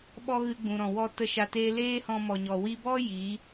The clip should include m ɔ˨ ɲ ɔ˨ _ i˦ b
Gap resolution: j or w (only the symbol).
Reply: w